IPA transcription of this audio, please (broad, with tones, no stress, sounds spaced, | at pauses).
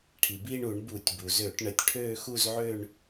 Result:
ʈʰ i˩ b iː˥˧ ɳ u˧˩˧ ɳ b u˧˩˧ tʲ b u˩ z ø˧˩˧ ʈ ɳ ə˧˩˧ tʲ ʈʰ øː˥˧ x u˥˧ z ʕ ø˥˧ ɳ